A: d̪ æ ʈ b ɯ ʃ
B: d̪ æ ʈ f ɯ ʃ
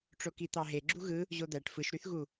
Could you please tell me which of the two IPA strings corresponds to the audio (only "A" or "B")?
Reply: B